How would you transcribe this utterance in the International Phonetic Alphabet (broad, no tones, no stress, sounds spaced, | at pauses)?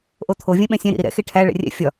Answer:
ʔ o t̪ʰ o vʲ ɛ̃ ɓ ɛ̃ sʲ ɛ̃ ɾ ḭ ɾ i ɾ ɛ̰ x e ʈʰ æ ɭ ɛ̰ rʲ ɛ̰ fʲ ɒ